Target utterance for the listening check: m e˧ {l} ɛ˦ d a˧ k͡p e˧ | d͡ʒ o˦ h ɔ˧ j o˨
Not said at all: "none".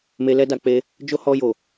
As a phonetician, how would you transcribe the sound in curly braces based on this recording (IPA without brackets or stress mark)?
l